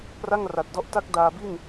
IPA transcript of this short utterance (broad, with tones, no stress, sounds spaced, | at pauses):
p r a˥˩ ŋ r a˨˩ t̚ d ɔ˦˥ ʔ t a˦˥ k̚ d aː˧ b i˥˩ n